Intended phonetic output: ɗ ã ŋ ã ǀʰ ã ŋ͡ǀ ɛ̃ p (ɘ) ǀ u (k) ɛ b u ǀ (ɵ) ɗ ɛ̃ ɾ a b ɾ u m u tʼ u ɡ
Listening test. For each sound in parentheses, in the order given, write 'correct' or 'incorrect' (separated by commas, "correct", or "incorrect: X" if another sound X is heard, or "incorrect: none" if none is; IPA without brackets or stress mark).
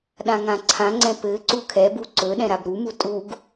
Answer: correct, incorrect: kʰ, correct